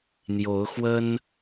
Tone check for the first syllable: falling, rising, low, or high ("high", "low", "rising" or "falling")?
rising